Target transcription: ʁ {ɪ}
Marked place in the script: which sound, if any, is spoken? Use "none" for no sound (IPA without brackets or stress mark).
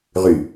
y